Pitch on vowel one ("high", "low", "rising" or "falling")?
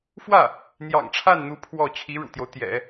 falling